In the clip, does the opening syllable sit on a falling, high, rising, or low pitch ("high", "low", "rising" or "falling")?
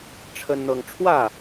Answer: high